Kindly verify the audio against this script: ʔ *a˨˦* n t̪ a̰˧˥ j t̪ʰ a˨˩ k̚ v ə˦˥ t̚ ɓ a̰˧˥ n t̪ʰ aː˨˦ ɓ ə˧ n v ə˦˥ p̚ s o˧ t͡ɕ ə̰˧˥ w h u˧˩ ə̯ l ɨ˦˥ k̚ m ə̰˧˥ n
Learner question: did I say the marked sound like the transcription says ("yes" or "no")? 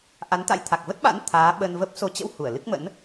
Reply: yes